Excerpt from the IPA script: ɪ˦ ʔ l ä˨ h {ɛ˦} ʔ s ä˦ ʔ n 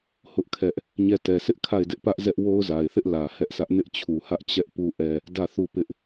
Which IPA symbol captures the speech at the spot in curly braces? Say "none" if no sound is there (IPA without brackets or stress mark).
ɛ˦